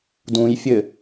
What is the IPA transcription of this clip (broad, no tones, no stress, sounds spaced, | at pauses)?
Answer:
d ũ j fʲ ɘ